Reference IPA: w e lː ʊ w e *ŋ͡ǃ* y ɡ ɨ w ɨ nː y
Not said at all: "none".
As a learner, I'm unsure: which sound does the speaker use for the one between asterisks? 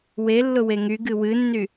ŋ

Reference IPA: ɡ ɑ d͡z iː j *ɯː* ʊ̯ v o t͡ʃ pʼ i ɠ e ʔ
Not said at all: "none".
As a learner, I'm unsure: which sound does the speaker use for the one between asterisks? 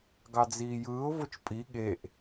ɯː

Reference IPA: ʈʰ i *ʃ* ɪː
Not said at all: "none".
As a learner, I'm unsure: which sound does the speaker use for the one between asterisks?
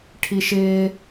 ʃ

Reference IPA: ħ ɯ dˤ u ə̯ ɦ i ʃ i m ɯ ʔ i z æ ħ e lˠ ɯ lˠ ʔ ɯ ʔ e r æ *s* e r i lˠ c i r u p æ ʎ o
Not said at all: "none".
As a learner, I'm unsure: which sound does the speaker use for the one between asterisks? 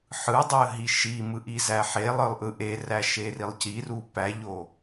ʃ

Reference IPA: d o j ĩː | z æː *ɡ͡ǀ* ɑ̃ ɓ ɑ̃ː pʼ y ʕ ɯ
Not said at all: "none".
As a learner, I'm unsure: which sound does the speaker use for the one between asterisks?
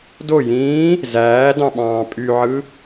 d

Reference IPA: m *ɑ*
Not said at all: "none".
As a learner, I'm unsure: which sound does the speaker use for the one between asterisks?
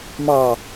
ɑ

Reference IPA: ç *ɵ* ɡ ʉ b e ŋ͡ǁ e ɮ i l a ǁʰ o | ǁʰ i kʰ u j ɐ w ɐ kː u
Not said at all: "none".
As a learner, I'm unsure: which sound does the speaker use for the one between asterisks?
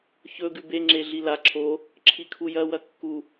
ɵ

